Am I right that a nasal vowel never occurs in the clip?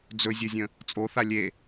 no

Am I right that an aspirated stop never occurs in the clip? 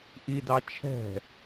no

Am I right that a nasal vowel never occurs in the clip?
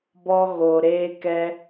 yes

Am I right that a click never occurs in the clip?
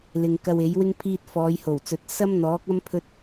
yes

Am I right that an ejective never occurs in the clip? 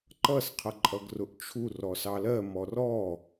no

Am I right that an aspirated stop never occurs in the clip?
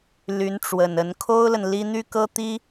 no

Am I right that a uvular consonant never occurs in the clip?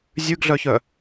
yes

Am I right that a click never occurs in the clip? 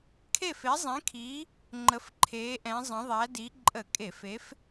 no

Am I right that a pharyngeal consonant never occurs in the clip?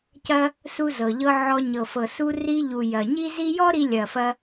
no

